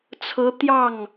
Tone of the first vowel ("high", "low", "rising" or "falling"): rising